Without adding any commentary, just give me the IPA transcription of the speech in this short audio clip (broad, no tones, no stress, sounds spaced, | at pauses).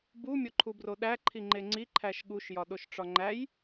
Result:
b u mʲ o ǃʰ u b r o ɗ æ ǃʰ i ŋ͡ǃ e ŋ͡ǀ i ǃʰ æ ʃ ɠ u ʃ j ɒ ɗ o ʃ ʈ͡ʂ ɒ ŋ͡ǃ æ j